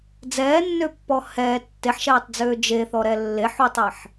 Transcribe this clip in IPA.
d͡zɛːnːøpːɔ hɛː tːeħʃɛːtˤd͡zøː d͡ʒeθɔɾɛ lːeħutˤɛħ

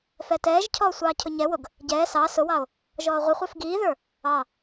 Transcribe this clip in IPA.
fɛtɛːʒcʰɔː sʷɑːcʰʊɲɛwʊɡ | ɟɛː sɑ sʊwɑo̯ | ʒɔːʁʷɪχʷɛf ɡiːðə˞ | ɑ

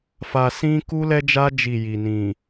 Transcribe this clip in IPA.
fa˨sĩ˦ ku˦lɛ˦d͡ʒa˦ d͡ʒi˦˨ji˨nĩ˨

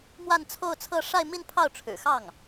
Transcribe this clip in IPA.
mwa˥˧nt͡sʰo˥˧ʊ̯t͡sʰɤ˥˧ ʂa˥˧ɪ̯mi˥˧n pʰɑ˥˩ʊ̯ʈ͡ʂʰɻ̩˨˩ xɑ˥˩ŋ

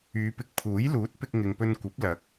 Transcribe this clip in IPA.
yː˨˧ pɪ˨k̚pʰuː˨˥j luː˨˥t̚ pɪ˧k̚ŋɪ˨ŋpɵ˧n kʷɐ˨˥p̚ lɐ˨˥k̚

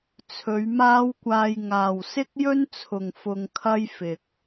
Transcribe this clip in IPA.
t͡sʰɵ˨˧ɥmaː˥wkʷaː˧j ŋaː˨wsɪ˥k̚jɵ˥nt͡sʰʊ˨ŋ fʊ˧ŋkʰɐ˥j fɪ˨k̚

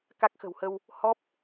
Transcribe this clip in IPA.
ka˦˥k̚xə̤˨˩whə˧w | hɔ˦˥p̚

